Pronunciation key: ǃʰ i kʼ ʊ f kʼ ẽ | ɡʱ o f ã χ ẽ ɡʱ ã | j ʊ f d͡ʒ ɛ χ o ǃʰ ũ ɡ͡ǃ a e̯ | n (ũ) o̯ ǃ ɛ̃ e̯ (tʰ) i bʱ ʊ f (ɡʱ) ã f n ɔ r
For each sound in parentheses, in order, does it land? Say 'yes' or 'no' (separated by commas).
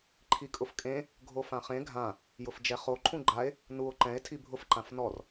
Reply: no, yes, no